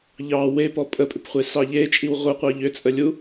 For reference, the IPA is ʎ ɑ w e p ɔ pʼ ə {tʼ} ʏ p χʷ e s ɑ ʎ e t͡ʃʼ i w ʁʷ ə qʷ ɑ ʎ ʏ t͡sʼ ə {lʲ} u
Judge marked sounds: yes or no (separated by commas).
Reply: no, yes